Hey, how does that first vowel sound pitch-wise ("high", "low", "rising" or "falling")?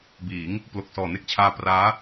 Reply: rising